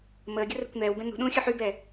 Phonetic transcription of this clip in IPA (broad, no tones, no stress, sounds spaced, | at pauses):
m əː ɡʲ ə r ɛ̤ kʷ n ɛː w b ɛ̃ n ṳ ɗ ũː xʲ ɵ ħ y b ɛ